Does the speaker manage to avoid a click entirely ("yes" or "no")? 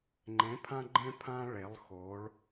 no